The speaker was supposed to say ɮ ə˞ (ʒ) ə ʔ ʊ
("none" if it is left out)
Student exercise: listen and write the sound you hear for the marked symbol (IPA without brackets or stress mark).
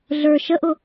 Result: ʃ